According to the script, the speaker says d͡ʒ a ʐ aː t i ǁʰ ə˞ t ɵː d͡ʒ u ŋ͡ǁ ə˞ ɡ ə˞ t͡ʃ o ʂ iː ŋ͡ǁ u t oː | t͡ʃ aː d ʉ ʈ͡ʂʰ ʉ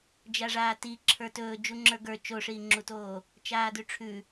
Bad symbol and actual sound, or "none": none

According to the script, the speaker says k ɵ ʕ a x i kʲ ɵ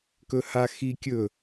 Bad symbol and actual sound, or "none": ʕ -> h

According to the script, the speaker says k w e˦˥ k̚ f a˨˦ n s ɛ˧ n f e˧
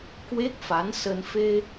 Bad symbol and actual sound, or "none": ɛ˧ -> ə˧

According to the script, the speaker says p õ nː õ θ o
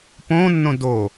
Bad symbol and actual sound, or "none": θ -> d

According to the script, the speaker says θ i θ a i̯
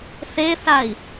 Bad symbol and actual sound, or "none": i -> e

